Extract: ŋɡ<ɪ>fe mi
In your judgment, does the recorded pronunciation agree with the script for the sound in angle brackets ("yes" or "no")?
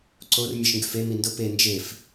no